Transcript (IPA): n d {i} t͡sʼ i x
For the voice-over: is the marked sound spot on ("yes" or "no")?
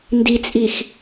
yes